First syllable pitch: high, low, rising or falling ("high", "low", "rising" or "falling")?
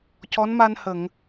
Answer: rising